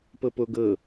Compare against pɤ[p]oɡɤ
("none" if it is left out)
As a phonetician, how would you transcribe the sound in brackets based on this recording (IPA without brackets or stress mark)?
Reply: p